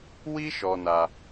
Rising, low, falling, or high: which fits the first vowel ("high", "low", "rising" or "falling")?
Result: high